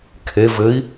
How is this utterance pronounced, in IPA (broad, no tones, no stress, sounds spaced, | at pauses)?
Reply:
kʰ e v ɘ i̯